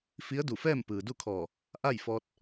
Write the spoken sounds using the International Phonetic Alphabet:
f i˧˥ ə̯ d u˧˩ f ɛː˥˨ m p ɯː˩ d u˥˨ kʰ ɔː˧˩ | ʔ a˥˨ j f ɔː˧ t̚

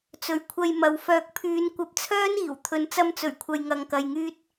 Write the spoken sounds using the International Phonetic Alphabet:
t͡s ɵ˨˥ ɥ kʷʰ ɐ˧ j m ɐ˨ w f œː˨ k̚ pʰ yː˨˧ n kʷ ɐ˧ p̚ t͡sʰ œː˥ n iː˨˩ w t̪ʰ ɵ˨ n t͡s ɐ˧ m t͡s ɵ˨˩ ɥ kʷʰ ɐ˨ j ŋ ɐ˧ ŋ k ɐ˧ j ŋ yː˥ t̚

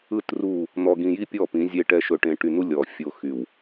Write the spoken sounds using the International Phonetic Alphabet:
ɯ˦˨ t r u˦˨ | n̪ ɔ˨ ɡ ĩ˨ j i˦ pʲ ɔ˦˨ p ĩ˨˦ zʲ e˦ ʈ ɛ˦ ʃ ɵ˨ ʈ ẽ˨ ʈ y˨ n u˦ lʲ ɔ˨ fʲ o˨ x y˨ w

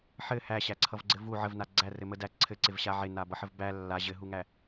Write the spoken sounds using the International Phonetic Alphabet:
ħ ɘ h æ ɕ æ ǀʰ ʌ v ɡ͡ǀ ɘ v u ʕ ə v n a ɡ͡ǀ æ r ɘ m ə d æ ǀʰ ɘ ǀ ɪ v ɕ a ʕ ɪ n a b ʌ ħ ə v b æ lː a ʑ ɘ ɦ u ŋ æ

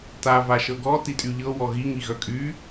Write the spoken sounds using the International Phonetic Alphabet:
t a v a ʃ ɤ ɡ ɔ t i tʼ y ʎ ɤ w ɔ ɣ i ŋ i ɣ œ kʼ y

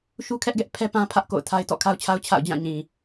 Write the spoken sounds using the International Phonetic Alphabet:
ʃ u˦ kʰ ɛ˦ ʔ ɡ ɛ˦ ʔ pʰ ɛ˦ p ã˦ pʰ ä˦ ʔ k o̰˦˨ ʊ̯ tʰ a˦ ɪ̯ t ɔ̰˦˨ kʰ a˦ ʊ̯ t͡ɕʰ a˦ ʊ̯ t͡ɕʰ a̰˦˨ ʊ̯ d͡ʑ ã˦˨ ɲ ĩ˨

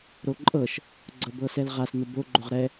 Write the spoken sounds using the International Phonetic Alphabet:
ɾ o ǃʼ ɤ ʃ | ɡ͡ǀ ɤ b ɤ s ɛ l ʁ a s n ʊ b o ɡ͡ǃ o ʁ ɾ ɛ

